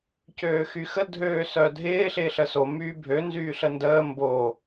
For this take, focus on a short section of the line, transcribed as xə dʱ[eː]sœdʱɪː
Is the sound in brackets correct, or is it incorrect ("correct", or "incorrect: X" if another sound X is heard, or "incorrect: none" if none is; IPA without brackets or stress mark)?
incorrect: øː